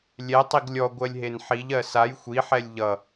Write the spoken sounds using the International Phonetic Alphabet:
lʲ ɛ tˤ i ɡ lʲ ɔ ɡʷ ɜ lʲ ɦ e n ħ i ʎ ɜ s a j xʷ i ħ ɛ lʲ ʎ ʌ

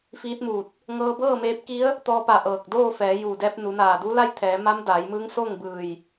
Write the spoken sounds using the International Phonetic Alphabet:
f iː˧˥ t̚ m uː˧˩ t̚ | ŋ ɤː˧ b ɤː˥˨ m eː˧ p̚ k i˧˥ ə̯ | t̪ ɔː˧ p a˧˩ ʔ ɤː˧˩ k̚ d oː˥˨ f ɛː˩˧ j uː˧˩ d ɛː˧ p̚ n u˩˧ n aː˧˩ d u˧˥ l a˥˨ j t̪ʰ ɛː˩˧ m a˧˥ m d aː˩˧ j m ɯː˧˥ ŋ s oː˥˨ ŋ b ɯː˧˩ j

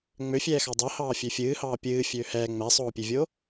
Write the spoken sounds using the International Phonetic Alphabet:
ŋ͡m ø fʲ ɛː x ɑ dˤ ɛ h ɑː fʲ ø fʲ ɨː h ɑː pʲ ɨː fʲ øː h ɛː ŋ͡m ɛ sˤ oː pʲ e vʲ o

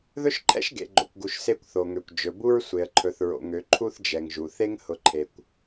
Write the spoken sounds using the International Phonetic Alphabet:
ð ɵ˦ ʃ ǃʰ ɛ̰˦ ʃ ɡ ḛ˨ ɡ͡ǃ o̰˨ kʷ ɡ u˨ ʃ s e˦˨ kʷ θ o˨ ŋ ø˨ kʷ d͡ʒ ɵ˨ b u˦ ɹ sʷ e˨ ə̯ ǃʰ ɵ˨ θ ɹ o̰˨ ŋ ø˨ ǃʰ u˦ θ d͡ʒ ɛ˨ ŋ ʒ u˨ θ e˦ ŋ h ʊ˨ ǃʰ e˨ kʷ

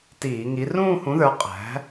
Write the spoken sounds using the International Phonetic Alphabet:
t iː˧˩˧ ŋ i˨˥ r ũː˥˧ h ũ˨˥ ð ə˞˨˥ qʼ æ̤˨˥

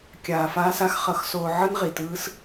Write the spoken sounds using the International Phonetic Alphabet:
kʲ aː˨ f aː˧ s a˧ x χ ʌ˨˦ x s oː˧ ʕ ɯ˦ n ʁ i˨ t ɯː˦ s

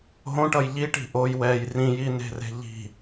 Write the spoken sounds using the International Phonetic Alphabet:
ɦ õ ʈ ʌ j ʎ i ʈ i̤ ʔ o j w ɛ j r ĩ j i n e̤ r e̤ ʎ i̤

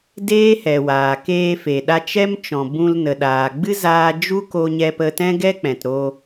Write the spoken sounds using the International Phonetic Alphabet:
d eː˦ h ɛ˨ w aː˨ k eː˧ f e˨ ɗ a˧ t͡ʃ ɛ˦ m t͡ʃ ɔ̃˨ b ũ˧ l n ə˨ ɗ aː˨ ɡ͡b ɨ˦ z aː˧ d͡ʒ u˦ k o˧ ɲ ɛ˧ p ə˧ t ɛ̃˦ ɡ ɛ˦ k͡p ɛ̃˨ t ɾ oː˧

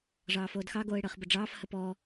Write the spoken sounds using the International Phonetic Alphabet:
ʐ ɑː f oː d x ɑ ɡ oː ɪ̯ ɽ əː χ b ə ɖ͡ʐ ɑː f h ə p ɔː

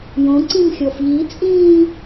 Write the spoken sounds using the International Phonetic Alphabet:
j õ ǀ ĩ m xʲ ɔ f ʎ i t͡sʼ ĩː

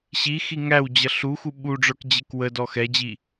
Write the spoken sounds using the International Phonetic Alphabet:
ɕ i x i ŋ æ w d͡ʑ ʌ ɬ u x u ɓ u ɖ͡ʐ ə˞ k d͡ʑ ɪ k w ə d ɔ x ɛ d͡ʑ i

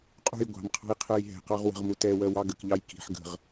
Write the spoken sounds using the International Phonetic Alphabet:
qʼ ṳ j ɡʷ ɑ̤ m qʰ ɑ̤ j qʰ ɜ j ɦ ɛ̤ q ɑ ʁ w ə̤ ʁ m u t ɛ w ɜ w ɑ ɡ ə k ʎ ɑ j k i̤ ħ ɡ ə̤ ʁ

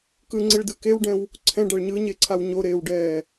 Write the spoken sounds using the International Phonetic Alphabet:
k ɯ ŋ͡ǀ i ɭ d ɯ k e w ɖ ɛ̃ w | ǀʰ ɛ̃ ɖ a ɭ ɲ ɯ ɲ e ǀʰ a w ɲ o ɾ eː w ɖ ɛː

